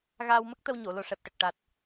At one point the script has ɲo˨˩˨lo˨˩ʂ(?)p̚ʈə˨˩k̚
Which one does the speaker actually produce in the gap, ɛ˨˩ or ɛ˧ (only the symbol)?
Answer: ɛ˨˩